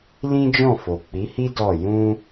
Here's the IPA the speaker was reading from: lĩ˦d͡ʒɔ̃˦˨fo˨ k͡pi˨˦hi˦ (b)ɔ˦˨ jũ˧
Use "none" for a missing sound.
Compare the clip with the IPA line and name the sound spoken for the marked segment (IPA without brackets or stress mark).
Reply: d